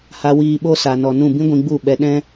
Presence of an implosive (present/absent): present